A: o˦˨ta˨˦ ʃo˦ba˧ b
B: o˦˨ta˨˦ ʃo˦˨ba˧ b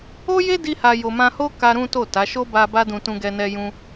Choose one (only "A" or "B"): A